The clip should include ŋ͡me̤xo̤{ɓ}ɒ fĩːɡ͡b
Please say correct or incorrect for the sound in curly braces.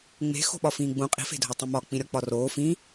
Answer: correct